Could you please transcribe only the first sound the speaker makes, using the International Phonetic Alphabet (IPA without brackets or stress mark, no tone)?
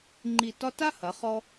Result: ŋ͡ǃ